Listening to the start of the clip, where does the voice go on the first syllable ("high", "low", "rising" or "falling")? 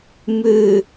low